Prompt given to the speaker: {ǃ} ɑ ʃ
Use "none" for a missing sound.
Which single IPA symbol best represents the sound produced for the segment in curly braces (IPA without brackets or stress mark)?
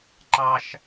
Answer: ǃ